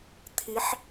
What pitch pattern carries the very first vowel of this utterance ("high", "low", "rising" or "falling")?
rising